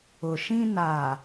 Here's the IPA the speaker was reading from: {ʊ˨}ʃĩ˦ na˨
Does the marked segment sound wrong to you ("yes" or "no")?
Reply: no